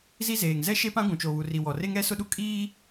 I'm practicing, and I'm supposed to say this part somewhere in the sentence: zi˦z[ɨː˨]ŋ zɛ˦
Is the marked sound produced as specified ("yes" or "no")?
no